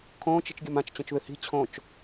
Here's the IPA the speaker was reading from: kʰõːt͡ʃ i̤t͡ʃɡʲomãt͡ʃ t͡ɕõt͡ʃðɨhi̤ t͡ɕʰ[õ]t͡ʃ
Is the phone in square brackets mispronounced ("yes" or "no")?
no